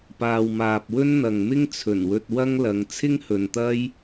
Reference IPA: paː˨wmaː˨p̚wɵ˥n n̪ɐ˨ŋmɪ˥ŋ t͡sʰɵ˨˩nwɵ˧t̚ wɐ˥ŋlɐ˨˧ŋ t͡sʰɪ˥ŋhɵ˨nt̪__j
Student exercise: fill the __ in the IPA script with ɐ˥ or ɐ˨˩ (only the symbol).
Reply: ɐ˥